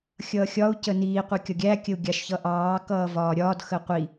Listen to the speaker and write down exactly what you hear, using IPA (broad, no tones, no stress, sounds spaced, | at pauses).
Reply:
xʲ ʌː xʲ ɒ u̯ c ə n iː qʷ i kʲ ɒ ɡʲ æ kʲ ə u̯ ɡʲ ɑ ʃ ç ʌ ʔ ɑː k ʌː v ɒː ɾʲ ɒː d x ə qʷ i